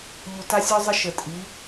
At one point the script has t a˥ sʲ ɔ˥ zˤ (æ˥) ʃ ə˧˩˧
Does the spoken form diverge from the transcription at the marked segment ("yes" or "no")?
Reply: yes